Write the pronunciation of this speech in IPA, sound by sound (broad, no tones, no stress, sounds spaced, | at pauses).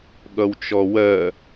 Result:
ɠ ʌ w t͡ʃ ɔ w ɜ